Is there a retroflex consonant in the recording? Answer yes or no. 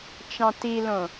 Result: no